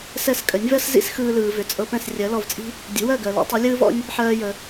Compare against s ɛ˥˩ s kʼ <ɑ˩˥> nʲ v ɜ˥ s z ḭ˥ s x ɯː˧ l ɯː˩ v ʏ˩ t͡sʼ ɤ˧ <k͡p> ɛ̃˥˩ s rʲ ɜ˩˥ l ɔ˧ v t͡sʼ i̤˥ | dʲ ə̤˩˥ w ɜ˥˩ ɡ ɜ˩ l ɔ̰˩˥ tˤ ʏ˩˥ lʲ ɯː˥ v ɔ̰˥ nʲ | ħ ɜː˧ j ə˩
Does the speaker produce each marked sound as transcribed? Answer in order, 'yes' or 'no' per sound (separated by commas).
no, no